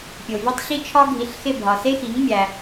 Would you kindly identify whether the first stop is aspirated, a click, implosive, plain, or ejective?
plain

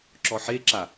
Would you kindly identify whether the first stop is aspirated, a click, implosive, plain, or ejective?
click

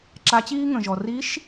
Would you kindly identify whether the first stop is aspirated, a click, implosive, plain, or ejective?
click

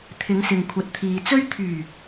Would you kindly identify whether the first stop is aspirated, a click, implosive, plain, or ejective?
aspirated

